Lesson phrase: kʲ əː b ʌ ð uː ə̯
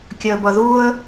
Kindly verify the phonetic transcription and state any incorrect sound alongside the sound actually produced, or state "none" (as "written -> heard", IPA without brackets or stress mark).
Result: none